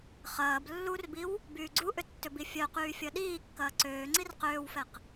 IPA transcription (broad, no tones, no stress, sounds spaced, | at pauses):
χ ɐː b lː u r b i w | b yː ɡ͡ǀ u ʔ ʏ tː ʏ b i fʲ œ q yː fʲ ɐ ɗ iː kː ɐː ǀ øː ŋ͡ǀ i r q øː w f ɛ q